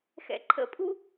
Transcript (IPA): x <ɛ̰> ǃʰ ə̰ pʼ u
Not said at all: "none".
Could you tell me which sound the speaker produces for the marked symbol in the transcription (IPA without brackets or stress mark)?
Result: ɛ̰